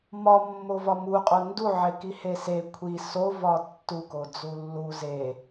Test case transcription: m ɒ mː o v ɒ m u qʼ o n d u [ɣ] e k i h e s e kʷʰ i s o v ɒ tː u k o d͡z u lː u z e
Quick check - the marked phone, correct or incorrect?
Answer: incorrect